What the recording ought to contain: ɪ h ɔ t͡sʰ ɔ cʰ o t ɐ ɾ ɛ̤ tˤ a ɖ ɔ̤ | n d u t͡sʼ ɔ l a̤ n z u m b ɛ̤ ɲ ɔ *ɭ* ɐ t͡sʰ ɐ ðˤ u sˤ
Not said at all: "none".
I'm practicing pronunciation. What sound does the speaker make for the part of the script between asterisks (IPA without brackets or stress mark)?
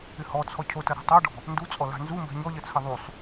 ʎ